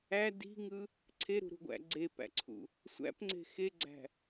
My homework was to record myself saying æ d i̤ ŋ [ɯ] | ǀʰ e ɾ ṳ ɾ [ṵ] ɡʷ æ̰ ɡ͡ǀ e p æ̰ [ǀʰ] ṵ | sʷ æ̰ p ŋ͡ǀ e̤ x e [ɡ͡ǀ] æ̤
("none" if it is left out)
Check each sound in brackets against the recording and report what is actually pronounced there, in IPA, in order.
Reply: ɯ, ṳ, ǀʰ, ɡ͡ǀ

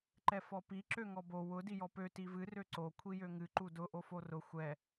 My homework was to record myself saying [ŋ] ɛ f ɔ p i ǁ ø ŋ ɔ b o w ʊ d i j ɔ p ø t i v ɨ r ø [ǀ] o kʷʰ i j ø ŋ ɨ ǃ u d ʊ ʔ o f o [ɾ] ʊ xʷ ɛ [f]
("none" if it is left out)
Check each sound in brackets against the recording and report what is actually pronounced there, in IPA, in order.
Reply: ǃ, ǀ, r, none

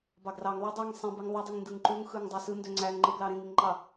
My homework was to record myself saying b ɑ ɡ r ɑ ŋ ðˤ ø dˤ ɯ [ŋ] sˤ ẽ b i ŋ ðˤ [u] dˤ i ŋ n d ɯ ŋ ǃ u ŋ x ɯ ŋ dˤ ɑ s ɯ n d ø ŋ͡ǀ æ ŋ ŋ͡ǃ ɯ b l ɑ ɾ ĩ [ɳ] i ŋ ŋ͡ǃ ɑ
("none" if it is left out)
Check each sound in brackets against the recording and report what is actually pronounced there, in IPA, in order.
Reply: ŋ, u, ŋ

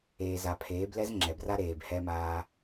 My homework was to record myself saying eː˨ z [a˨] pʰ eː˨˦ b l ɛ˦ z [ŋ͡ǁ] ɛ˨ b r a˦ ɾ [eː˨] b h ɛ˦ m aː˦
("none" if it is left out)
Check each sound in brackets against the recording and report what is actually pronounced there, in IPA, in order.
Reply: a˨, ŋ͡ǁ, eː˨

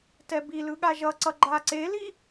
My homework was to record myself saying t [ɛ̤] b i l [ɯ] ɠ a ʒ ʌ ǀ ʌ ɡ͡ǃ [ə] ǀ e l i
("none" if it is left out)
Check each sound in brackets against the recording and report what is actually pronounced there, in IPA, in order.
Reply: ɛ, ɯ, a

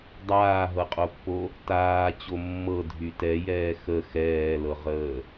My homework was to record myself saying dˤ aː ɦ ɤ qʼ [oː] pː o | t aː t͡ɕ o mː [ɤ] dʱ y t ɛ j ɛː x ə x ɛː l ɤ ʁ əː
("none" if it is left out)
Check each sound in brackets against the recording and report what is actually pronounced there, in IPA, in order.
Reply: o, ɤ

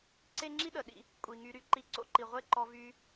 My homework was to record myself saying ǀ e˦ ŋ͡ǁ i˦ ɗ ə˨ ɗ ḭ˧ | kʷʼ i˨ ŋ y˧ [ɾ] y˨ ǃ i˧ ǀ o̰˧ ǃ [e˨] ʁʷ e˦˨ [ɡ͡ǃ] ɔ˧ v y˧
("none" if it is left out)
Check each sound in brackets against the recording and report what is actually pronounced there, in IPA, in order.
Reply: ɾ, i˨, ǃ

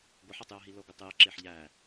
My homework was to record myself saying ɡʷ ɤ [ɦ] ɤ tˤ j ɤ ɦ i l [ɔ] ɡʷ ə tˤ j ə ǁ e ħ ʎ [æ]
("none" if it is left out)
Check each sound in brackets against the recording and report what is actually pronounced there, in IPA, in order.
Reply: ħ, ɤ, æ

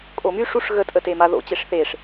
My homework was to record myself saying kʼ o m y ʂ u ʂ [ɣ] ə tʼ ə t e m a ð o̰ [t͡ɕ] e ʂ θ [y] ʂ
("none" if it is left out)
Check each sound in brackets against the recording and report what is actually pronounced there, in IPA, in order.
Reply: ɣ, t͡ɕ, e

